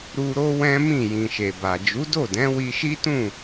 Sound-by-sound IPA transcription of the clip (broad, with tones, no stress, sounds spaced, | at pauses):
ɾ u˧ ɾ o˦ w ɛ̃˦ m ĩ˦˨ j ĩ˨ ʃ e˨ b a˨ d͡ʒ u˨˦ d o˦˨ d ɛ̃˨˦ w i˧ ʃ i˦ t ũ˦˨